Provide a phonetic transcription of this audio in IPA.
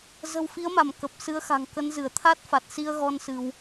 z ə̤˨˩ w f i˨˦ ə̯ m a˧˩ m k ə˨˩ p̚ s ɨ˨˦ ə̯ x a̤˨˩ ŋ k ə˨˦ n z ɨ˧˩ ə̯ t̪ʰ a˦˥ t̚ f a˨˩ t̚ s i˧ ə̯ ɣ ɔ˧ n s ɨ˧ w

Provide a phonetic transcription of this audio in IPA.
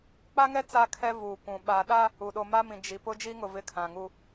k͡p a˦ ŋ ɛ˦ t͡s a˦ kʰ ɛ˦ v uː˨ kʷ ũ˨ ɓ a˨ ɗ a˦ | u˨ ɗ o˨ m a˦ m ĩ˨ d͡ʒ i˨ p ʊ˦ d͡ʒ i˦ ŋ ʊ˨ v ɪ˦ kʰ ã˨ ŋ u˦

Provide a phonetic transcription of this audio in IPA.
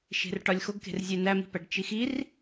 ʃ e̤ r ʈ ɒ lʲ x o ɡ k e̤ r zʲ e n æ m i̤ p æ ɖ t͡ʃ i x i r

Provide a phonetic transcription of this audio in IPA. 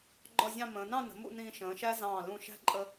ɡ͡ǃ ɒ˥˧ zʲ ɑ̃˥˧ m ə̃ː˩˧ n ɑ̃˥˧ n ə̤˩˧ m ṵ˥˧ n ĩː˧ ʃ ə̃ː˩˧ ʃ æ˥ z ɑ̃ː˧˩ l ũ˧˩ ʃ æ̤˥ ǃʼ ə˧

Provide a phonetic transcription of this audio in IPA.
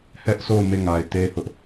h ɛ˦ ʔ sʰ o˦˨ ʊ̯ m e˦˨ ŋ a˨ ɪ̯ t e˦ h ʊ˦ ʔ

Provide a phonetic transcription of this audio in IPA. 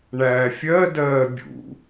ɳ æː fʲ ɜ d ɜː bʲ ṵ

